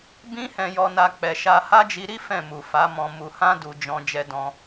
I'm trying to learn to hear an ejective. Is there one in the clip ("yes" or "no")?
no